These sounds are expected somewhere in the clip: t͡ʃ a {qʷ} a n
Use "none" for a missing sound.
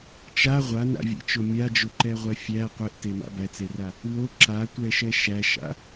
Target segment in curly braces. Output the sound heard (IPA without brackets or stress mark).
ʁʷ